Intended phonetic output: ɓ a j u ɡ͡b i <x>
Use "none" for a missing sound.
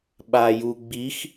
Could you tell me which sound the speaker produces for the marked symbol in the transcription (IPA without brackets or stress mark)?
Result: x